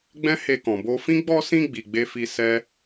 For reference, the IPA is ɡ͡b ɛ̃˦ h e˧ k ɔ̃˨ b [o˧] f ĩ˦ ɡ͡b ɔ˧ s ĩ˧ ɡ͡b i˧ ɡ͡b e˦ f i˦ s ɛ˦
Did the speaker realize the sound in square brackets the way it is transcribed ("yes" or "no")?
yes